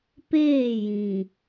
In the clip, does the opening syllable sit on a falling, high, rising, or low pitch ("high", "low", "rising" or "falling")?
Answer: falling